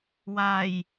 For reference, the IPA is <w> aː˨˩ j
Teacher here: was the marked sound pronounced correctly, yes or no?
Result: yes